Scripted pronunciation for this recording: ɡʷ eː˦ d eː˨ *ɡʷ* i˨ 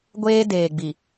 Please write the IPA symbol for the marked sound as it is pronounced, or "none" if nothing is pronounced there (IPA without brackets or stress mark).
ɡ͡b